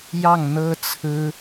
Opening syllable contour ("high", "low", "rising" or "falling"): falling